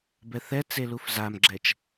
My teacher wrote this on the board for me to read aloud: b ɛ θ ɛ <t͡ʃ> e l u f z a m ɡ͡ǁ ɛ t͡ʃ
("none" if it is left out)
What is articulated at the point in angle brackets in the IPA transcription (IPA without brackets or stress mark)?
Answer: t͡s